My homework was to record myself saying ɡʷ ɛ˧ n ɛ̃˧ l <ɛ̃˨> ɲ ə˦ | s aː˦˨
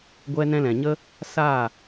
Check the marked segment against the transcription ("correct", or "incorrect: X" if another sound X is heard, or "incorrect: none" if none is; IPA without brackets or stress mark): correct